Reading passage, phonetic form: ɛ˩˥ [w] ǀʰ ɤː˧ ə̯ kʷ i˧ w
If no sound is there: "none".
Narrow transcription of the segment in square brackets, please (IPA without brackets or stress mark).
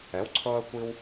w